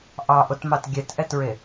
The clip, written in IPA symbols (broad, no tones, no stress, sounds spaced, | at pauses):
ʔ ɑ ʔ o t m ɑ t ɡʲ ɛ t ʔ ɛ t ɹ e